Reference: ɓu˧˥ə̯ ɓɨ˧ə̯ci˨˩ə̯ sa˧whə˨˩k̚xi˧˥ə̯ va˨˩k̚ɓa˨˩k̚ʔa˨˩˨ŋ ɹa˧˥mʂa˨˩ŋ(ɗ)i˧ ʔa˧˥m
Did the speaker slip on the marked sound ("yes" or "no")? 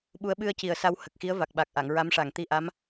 yes